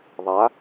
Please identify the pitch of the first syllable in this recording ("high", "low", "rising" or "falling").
rising